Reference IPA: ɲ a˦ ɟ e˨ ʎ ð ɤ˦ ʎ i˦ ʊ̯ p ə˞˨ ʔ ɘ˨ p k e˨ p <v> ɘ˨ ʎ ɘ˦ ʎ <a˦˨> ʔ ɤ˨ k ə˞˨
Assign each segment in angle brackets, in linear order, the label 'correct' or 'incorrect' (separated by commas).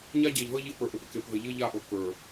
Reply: incorrect, correct